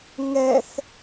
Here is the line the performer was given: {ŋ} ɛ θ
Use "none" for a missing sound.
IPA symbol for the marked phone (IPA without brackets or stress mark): ŋ